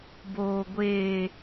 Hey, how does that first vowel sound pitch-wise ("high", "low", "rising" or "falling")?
low